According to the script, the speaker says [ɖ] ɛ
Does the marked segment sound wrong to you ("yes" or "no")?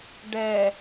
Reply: no